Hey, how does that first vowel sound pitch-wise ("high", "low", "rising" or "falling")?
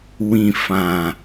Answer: low